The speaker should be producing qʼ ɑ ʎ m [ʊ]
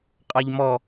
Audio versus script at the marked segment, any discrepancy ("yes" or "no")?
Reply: yes